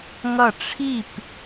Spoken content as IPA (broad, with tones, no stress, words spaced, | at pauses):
ŋʌ˥˩ ʈ͡ʂʰi˥˩p